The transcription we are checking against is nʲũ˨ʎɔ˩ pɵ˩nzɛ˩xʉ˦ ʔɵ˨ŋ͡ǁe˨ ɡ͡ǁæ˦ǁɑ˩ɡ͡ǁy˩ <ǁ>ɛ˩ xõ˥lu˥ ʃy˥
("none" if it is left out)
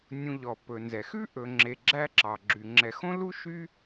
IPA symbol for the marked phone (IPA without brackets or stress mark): ŋ͡ǁ